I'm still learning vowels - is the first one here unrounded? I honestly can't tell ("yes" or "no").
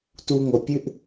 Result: no